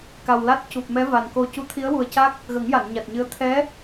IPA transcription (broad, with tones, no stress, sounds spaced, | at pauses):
k a˨˩ w l a˦˥ t̚ c u˨˩ p̚ m ɛ˧˥ v a˨˩ n k o˧ c u˧˥ t̪ʰ i˧˥ ə̯ w u˨˩ ə̯ c a˦˥ k̚ | ɣ ə˨˩˦ ŋ j a˨˩˨ n ɲ a˨˩ t̚ ɲ ɨ˧˥ ə̯ t̪ʰ ɛ˧˥